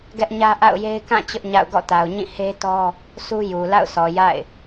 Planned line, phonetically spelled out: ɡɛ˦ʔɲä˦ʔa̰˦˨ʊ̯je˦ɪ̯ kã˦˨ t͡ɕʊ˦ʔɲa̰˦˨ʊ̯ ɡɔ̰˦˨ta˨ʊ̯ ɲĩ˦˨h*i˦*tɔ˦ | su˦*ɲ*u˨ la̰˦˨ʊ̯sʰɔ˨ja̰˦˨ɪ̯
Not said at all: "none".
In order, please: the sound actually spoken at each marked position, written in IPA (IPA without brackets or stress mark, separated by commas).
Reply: e˦, j